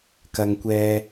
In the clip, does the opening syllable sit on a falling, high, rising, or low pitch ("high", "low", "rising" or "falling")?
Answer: low